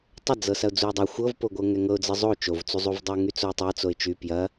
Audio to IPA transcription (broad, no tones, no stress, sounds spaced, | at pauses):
tˤ ɐ d͡z ɤ s ɐ ʊ̯ d͡z u ɪ̯ dˤ ɐ xʷ ɤ v p o ɡʷ ɤ ŋ ɛ ŋ ɤ ʊ̯ d͡z ɤ zˤ o t͡ʃ o v t͡s u zˤ u v dˤ ɛ ʊ̯ ŋ y t͡s o ɪ̯ tˤ ɤ t͡s o ɪ̯ t͡ʃ y p j ɐ